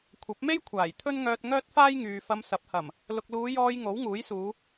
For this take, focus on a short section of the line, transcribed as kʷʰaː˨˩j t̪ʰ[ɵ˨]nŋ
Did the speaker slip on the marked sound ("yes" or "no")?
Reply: yes